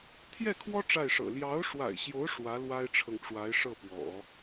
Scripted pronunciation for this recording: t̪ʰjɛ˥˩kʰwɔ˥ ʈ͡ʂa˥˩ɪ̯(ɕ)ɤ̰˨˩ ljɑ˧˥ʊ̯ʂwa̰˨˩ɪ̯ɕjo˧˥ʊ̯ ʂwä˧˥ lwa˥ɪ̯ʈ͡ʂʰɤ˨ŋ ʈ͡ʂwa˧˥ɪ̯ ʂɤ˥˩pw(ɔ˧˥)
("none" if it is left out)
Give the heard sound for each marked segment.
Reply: ʂ, ɔ̰˨˩˦

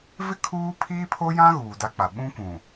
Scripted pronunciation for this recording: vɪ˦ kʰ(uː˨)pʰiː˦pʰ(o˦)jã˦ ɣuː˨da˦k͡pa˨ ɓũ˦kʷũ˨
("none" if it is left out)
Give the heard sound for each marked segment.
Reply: uː˦, o˦

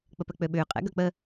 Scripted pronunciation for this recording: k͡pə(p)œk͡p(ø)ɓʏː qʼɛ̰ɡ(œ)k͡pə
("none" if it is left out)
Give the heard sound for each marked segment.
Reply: p, ø, œ

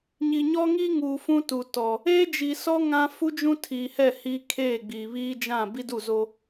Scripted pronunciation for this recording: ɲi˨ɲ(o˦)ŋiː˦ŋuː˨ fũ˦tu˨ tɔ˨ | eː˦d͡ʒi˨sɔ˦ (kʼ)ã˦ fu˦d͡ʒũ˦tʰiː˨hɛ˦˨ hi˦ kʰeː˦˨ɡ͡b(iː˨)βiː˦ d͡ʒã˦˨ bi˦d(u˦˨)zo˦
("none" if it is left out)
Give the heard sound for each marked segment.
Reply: ɔ˦, ŋ, iː˨, u˦˨

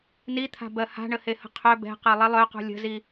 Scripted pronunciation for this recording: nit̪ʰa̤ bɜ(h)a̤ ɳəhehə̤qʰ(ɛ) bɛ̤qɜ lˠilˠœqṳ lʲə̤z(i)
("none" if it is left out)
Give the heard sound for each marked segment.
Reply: h, œ, i

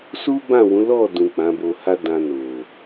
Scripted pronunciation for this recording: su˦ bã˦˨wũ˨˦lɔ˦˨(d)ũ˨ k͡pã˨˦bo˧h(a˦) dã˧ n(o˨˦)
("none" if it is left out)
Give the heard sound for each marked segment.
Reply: d, a˦, o˨

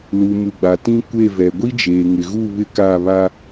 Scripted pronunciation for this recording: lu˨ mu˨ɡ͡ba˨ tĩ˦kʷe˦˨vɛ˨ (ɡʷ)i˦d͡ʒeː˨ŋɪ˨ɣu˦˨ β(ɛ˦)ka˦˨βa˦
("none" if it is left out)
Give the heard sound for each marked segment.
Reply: ɡʷ, ɪ˦

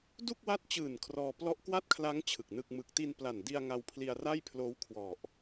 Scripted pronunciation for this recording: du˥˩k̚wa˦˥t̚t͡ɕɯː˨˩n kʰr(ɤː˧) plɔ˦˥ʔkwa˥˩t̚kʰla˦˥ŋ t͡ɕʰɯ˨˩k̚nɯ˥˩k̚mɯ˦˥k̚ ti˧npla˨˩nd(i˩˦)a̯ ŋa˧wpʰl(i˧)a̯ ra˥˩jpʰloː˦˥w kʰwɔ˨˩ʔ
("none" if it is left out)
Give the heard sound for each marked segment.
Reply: ɔː˧, i˧, i˧

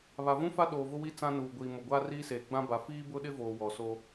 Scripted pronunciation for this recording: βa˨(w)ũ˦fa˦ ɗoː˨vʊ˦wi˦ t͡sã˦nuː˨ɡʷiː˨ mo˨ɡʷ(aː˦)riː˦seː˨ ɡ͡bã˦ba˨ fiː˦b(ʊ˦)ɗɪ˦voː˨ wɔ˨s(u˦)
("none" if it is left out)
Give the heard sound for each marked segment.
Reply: v, aː˦, ʊ˦, o˦

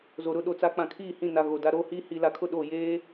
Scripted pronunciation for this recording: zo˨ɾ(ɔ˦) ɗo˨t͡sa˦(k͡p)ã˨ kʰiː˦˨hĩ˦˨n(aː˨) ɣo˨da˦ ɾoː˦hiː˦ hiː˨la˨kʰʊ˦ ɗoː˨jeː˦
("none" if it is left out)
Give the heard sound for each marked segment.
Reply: ʊ˦, k͡p, a˨

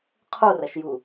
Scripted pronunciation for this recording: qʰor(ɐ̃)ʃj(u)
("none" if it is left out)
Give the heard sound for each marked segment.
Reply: ɐ, u

